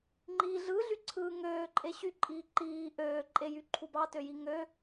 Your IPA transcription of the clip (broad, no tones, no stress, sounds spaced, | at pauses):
ŋ͡ǃ i ɮ ɯ ɮ y ǀʰ ɯː ŋ øː ǃʼ e ɕ y ǃʼ iː ǃ iː ʔ øː ǃʼ e j y ǃʰ u b ɑ t ø j i ŋ ø